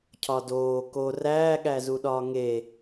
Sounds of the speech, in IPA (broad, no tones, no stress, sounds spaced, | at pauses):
cʰ ɒ d oː k o r æː ɠ æ z u ɗ ɒː ŋ e